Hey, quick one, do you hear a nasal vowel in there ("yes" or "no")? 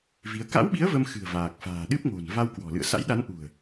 no